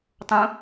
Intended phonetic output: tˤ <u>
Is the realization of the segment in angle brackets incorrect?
yes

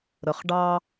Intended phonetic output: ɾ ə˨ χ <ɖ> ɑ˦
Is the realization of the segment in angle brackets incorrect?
no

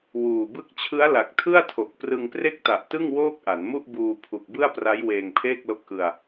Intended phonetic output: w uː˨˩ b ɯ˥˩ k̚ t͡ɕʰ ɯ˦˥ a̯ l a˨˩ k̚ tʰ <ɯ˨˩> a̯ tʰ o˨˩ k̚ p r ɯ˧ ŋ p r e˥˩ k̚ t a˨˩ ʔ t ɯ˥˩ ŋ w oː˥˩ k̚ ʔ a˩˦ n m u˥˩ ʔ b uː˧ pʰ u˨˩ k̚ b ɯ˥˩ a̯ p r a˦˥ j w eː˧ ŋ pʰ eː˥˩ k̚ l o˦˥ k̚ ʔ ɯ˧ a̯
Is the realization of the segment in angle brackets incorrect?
yes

